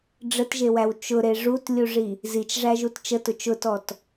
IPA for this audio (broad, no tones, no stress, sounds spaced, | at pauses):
ɖ͡ʐ ə t ʒ e w æ w t͡ʃ ʊ ɾ e ʐ u t lʲ u ʐ i | z i t͡ʃ ʐ æ ʒ u t t͡ʃ ə t ʊ t͡ʃ ʊ t ɔ t